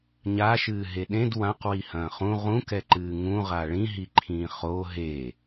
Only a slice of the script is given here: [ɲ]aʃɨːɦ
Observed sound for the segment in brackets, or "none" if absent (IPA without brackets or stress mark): ɲ